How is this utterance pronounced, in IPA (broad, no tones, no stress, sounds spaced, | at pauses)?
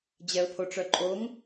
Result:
d͡ʑ ɛ ʊ̯ pʰ o ʈ͡ʂ œ ǃʼ o ŋ